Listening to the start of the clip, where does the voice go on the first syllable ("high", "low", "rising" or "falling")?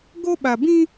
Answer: high